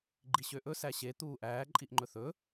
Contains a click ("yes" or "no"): yes